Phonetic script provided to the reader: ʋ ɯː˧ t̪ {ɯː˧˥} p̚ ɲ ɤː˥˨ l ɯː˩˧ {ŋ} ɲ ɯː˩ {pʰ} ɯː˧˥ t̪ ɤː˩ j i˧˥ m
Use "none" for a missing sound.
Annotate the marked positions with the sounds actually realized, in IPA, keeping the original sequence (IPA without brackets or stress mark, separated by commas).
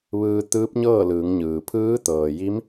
ɯː˧˥, ŋ, pʰ